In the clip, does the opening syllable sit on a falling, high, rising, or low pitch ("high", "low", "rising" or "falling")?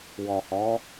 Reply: low